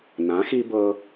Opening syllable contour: rising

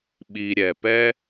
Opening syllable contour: low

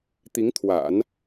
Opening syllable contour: rising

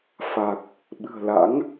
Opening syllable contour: low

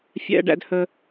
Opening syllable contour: high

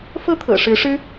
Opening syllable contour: falling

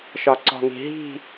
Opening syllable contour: low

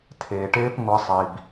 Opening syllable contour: low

